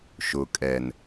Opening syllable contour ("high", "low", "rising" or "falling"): low